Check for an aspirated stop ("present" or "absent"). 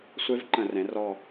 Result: absent